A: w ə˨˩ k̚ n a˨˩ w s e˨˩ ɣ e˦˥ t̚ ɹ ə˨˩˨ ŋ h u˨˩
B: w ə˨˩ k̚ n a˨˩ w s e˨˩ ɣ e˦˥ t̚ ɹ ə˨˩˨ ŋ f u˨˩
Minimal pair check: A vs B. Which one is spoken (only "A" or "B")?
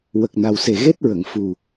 B